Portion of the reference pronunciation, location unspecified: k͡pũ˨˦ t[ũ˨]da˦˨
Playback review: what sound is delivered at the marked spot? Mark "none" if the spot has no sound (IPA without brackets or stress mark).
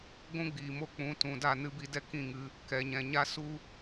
ũ˨